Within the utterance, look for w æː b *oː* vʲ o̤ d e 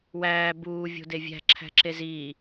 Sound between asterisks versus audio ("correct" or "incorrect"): incorrect